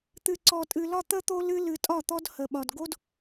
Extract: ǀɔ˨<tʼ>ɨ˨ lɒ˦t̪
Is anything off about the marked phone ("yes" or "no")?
no